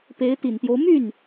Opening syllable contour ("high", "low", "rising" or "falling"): rising